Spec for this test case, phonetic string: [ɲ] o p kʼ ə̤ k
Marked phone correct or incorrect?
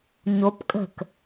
correct